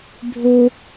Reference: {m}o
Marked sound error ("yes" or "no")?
yes